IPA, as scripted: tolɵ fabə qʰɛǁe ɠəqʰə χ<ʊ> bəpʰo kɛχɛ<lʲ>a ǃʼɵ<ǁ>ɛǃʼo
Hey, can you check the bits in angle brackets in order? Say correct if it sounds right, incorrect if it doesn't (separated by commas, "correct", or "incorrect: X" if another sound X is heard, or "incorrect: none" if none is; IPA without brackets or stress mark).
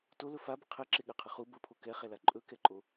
incorrect: u, incorrect: l, incorrect: k